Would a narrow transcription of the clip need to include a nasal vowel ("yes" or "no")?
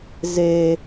no